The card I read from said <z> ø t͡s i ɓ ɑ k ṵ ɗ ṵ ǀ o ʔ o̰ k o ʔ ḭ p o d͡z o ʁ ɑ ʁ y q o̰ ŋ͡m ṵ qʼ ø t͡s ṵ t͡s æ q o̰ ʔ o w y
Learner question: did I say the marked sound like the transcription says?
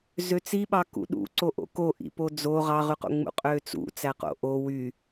yes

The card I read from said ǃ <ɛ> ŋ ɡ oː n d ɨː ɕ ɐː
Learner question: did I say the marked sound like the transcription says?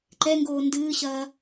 yes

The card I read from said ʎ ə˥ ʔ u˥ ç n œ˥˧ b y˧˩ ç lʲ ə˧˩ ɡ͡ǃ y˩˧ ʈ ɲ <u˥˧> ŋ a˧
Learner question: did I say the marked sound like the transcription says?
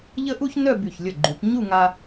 yes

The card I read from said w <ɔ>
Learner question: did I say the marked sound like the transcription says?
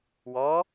yes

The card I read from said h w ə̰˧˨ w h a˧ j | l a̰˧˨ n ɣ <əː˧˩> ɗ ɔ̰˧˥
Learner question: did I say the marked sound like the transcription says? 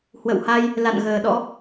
no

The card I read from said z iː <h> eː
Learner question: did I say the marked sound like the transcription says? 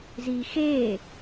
no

